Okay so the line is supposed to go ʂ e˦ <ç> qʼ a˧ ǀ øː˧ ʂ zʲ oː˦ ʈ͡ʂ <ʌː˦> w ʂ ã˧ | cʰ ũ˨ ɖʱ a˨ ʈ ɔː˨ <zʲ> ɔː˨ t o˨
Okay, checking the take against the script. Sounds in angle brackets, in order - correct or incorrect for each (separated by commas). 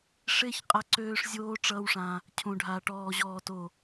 correct, correct, incorrect